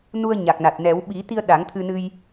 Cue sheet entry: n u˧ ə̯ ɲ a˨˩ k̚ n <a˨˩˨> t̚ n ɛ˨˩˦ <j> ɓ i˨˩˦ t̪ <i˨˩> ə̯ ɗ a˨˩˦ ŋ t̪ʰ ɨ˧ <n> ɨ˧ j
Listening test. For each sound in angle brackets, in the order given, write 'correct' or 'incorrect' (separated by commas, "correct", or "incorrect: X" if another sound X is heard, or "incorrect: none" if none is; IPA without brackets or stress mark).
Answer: incorrect: a˨˩, incorrect: w, incorrect: i˧, correct